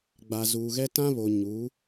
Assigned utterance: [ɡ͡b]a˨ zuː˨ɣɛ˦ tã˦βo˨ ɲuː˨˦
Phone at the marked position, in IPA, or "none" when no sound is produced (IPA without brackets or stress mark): ɡ͡b